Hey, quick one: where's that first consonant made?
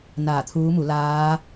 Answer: tongue tip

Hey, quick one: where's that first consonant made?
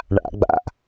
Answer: retroflex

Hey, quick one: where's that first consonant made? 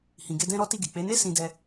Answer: throat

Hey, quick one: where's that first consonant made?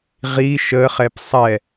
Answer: uvula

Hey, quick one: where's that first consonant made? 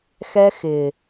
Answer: velum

